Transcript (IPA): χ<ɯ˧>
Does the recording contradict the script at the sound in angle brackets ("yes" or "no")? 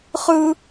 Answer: yes